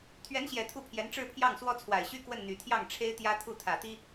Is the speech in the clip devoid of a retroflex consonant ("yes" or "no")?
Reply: no